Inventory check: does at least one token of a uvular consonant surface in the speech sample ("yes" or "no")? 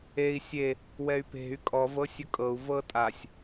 no